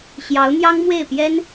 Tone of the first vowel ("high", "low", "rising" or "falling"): rising